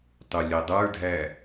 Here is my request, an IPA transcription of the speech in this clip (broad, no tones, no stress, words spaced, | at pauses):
tˤulʲɛdˤə˞dʱæ